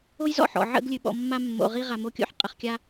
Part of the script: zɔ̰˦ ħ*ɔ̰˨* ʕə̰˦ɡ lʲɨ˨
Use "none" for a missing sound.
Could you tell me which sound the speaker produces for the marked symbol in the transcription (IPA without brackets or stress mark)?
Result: ɔ̰˨